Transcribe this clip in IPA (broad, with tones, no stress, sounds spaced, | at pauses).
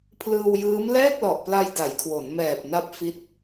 pʰ l ɯː˧ w j ɯː˦˥ m l ɛː˥˩ k̚ l ɔ˨˩ ʔ p l a˧ j d a˩˦ j kʰ w o˩˦ n m ɛː˨˩ p̚ n a˦˥ p̚ f i˦˥ t̚